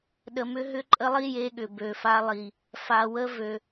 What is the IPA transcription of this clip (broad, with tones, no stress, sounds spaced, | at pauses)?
ɗ ə˨ m ʏ˦ ɦ ʏ˦ ǃʼ ə˦ lˠ i˦ j e˦ ɠ ʏ˨ b ø˨ f a˦ lˠ i˨ | f a˨ w ə˦ v ø˨